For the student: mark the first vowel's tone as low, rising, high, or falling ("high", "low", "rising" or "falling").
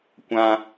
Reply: high